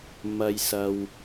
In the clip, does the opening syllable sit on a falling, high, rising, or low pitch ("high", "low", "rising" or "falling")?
low